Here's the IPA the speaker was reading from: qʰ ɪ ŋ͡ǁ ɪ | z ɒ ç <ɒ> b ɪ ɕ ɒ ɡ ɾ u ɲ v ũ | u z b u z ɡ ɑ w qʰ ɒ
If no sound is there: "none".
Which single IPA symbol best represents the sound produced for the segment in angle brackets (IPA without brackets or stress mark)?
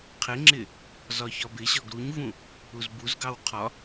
ɒ